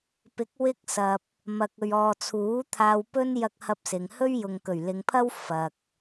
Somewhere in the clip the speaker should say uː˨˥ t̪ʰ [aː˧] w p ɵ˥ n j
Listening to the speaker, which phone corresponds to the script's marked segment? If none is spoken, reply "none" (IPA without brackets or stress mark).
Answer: aː˧